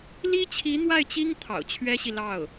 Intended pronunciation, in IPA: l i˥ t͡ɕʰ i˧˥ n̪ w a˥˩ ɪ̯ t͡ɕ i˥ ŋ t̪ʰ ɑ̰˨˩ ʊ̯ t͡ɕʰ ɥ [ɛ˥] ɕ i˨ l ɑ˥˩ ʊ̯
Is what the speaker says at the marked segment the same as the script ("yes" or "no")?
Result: yes